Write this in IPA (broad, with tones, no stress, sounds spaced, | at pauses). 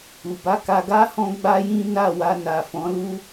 u˨ b a˨˦ k a˧ ɡ a˦ h ɔ̃˦ ɡ͡b a˦ j ĩ˦ n a˦˨ w a˧ n a˨ f ɔ̃˨˦ l u˦